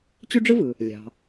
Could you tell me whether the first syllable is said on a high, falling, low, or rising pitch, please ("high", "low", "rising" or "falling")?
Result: high